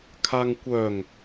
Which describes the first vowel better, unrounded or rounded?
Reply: unrounded